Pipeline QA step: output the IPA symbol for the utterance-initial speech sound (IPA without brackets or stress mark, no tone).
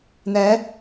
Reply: n̪